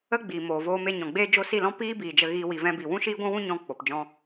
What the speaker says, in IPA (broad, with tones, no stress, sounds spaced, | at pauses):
ə˦ ɡ͡b iː˨ m oː˨ v oː˧ m e˧ ɲ ɔ̃˨ ɡ͡b eː˦ d͡ʒ o˦ s i˦˨ l ɔ̃˦ p iː˦ b iː˨ d͡ʒ ə˧ ɣ iː˧ w i˧ v ɛ̃˦ b i˧ w ũ˦ ʃ iː˦ ɡʷ ũ˦ w ũ˦ ɲ ɔ̃˧ k͡p o˨ p d͡ʒ ɔ̃˧